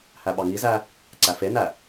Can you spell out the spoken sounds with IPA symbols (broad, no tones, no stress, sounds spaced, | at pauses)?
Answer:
h æ ɓ ɑ ŋ i z æ | ǀ æ f e n æ